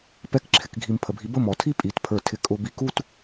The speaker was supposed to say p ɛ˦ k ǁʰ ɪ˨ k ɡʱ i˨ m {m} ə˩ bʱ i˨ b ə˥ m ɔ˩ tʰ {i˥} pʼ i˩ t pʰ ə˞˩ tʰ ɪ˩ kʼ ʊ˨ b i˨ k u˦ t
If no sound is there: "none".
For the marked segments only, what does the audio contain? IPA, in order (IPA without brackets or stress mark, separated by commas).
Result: pʰ, i˥